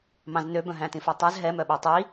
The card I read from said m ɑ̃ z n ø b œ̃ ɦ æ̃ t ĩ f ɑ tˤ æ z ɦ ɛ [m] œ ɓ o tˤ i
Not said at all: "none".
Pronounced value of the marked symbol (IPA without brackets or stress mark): m